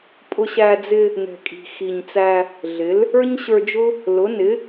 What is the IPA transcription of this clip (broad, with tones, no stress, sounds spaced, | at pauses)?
pʼ ʊ˧ ɕ æ˧ d͡z ɪ˧ | n ɛ̤˨˩ kʼ i̤˨˩ x i˨˩ ɲ t͡s æ˧ | ɮ ɪ˩˥ l | ə˞˥ ɲ ɕ ə˞˧ d͡ʒ ʊ˥ | l ʊ˩˥ n ɪ˩˥